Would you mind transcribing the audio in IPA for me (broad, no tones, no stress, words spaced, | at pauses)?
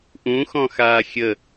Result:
ʔũxɔ̃ xaːxʲə